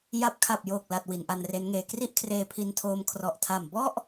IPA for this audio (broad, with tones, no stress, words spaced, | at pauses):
ja˥˩p̚ kʰa˨˩p̚joː˨˩k̚la˨˩t̚ wi˩˦nʔa˧nre˦˥nŋeː˧ kri˥˩ʔ kʰreː˧pʰi˧ntʰoː˧m kʰrɔ˨˩ʔtʰa˨˩m bɔ˥˩ʔ